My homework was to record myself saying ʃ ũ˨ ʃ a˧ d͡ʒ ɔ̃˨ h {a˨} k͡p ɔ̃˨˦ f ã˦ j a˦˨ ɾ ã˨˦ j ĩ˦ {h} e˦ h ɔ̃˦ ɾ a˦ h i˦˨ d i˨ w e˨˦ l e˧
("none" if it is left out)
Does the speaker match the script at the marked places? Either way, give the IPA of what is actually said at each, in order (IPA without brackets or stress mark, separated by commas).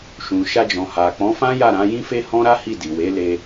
a˨, f